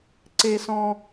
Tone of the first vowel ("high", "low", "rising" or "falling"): high